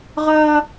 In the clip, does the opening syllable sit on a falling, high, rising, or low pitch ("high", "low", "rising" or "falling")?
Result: high